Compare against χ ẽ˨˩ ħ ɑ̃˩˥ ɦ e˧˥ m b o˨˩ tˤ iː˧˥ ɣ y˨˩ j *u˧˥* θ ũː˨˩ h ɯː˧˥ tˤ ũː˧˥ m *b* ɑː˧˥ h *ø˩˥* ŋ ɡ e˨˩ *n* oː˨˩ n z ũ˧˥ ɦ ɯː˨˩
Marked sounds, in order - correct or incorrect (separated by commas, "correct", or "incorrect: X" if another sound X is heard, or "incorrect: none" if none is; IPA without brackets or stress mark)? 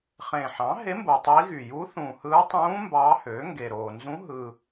correct, correct, correct, incorrect: ɾ